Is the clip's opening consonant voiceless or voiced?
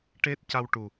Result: voiceless